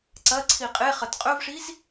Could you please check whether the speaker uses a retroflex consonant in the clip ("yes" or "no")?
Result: yes